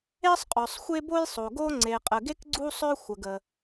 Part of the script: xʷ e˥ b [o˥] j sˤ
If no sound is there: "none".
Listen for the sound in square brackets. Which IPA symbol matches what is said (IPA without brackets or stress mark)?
o˥